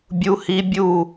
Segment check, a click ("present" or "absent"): absent